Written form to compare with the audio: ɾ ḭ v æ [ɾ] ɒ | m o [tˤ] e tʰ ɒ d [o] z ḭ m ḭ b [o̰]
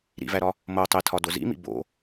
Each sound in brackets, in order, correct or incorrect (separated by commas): correct, correct, correct, correct